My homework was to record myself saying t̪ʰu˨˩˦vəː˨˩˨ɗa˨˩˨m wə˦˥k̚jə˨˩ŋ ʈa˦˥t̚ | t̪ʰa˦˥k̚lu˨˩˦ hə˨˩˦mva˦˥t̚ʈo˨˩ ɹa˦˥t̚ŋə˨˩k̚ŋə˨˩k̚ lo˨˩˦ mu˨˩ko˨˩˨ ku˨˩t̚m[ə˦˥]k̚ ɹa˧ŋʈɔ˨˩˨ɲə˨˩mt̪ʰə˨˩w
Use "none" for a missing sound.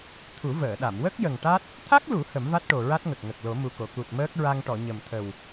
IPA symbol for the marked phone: əː˦˥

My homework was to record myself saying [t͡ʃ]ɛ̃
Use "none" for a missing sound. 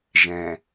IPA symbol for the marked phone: ʒ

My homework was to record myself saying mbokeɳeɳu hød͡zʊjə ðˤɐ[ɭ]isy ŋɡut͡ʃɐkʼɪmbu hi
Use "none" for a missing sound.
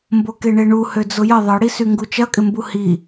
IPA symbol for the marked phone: ɽ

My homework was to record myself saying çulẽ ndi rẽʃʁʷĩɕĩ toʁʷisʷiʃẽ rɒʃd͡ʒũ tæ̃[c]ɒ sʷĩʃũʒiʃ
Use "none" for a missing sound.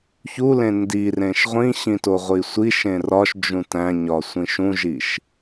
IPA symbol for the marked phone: ɲ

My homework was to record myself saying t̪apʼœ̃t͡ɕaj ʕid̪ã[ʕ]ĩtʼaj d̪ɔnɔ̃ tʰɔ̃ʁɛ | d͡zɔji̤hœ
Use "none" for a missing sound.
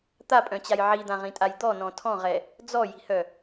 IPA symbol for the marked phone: ʁ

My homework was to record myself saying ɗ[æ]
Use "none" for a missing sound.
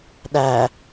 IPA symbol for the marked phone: æ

